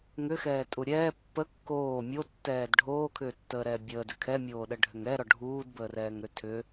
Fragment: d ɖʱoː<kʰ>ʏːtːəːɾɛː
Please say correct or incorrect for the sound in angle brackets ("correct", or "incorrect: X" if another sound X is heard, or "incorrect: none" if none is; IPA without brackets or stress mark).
correct